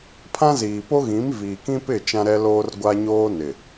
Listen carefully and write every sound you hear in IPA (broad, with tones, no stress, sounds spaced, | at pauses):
pʰ ã˦ z iː˨ p o˦ ɣ ĩ˨˦ m v iː˨ k ĩ˦ p ɪ˦˨ t͡ʃ ã˦ ɾ ɛ˦ l oː˦ r ɡʷ a˦ ɲ oː˦ n ɪ˨